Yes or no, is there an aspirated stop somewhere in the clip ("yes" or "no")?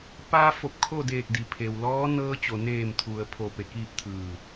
yes